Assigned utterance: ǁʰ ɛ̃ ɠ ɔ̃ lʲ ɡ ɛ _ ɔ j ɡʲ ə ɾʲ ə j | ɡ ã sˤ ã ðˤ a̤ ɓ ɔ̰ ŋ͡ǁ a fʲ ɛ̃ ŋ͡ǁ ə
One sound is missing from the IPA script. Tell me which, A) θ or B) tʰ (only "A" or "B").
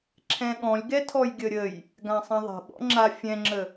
B